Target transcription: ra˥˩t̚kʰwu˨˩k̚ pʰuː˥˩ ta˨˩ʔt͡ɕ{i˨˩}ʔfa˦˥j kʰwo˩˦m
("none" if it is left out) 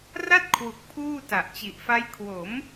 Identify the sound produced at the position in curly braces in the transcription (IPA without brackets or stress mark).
i˨˩